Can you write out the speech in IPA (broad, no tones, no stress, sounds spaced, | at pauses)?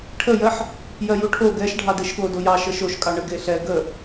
ʈʰ ə j ɜ ħ | j ɜ j u ʈʰ o ɡ ɛ ʃ ɖʱ ɑ d e ʃ ɠ o d o j ɑ ʃ ə ʃ o ʃ kʼ ɑ ɳ ə ɡ e ɬ ɛ ɡ ə